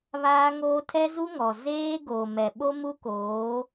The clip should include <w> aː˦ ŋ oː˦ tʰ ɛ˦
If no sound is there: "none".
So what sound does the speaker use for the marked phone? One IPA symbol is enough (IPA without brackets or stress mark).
β